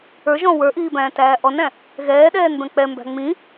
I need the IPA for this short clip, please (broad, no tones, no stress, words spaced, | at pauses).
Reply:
ə˞ʒɔ̃ wə˞ʔiːbæ̃ːtæː ʔɔnæ̃ | ɣɛːɗɛːnbɛ̃ k͡pɛmbæ̤ ŋ͡mĩ